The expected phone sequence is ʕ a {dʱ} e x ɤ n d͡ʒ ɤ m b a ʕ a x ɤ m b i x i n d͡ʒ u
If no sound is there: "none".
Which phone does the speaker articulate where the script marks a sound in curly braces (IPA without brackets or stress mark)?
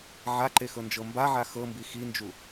ǃ